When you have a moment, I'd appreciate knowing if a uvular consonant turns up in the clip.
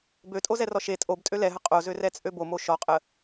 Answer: yes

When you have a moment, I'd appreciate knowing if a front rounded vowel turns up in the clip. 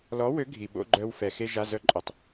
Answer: yes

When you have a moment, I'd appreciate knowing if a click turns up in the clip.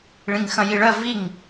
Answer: no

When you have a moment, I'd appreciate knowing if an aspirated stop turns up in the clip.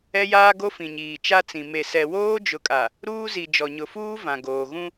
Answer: no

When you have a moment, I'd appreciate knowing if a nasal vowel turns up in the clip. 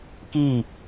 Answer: no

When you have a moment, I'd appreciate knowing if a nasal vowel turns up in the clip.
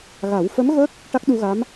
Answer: no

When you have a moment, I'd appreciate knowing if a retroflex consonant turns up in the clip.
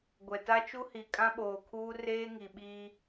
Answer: no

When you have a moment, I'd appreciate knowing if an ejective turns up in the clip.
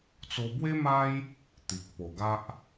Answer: no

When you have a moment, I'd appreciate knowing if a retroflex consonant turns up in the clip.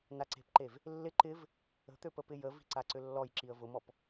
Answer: no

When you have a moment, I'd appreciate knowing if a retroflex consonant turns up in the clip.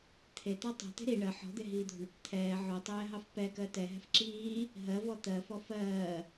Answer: yes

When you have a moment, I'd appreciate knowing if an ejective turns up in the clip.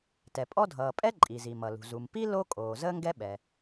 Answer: yes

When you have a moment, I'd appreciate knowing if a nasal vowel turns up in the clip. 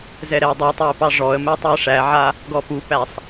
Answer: no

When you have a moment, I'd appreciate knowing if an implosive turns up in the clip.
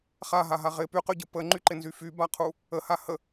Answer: no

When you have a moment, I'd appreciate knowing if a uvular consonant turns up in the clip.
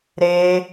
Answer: no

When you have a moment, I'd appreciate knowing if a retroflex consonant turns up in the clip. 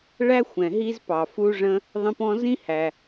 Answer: yes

